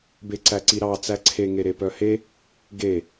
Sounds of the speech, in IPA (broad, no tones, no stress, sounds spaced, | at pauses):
b e ǀ æ ǀ i ɾ ɑ t͡s æ ǀʰ e ŋ e ɾ e p œ h e | ɡ e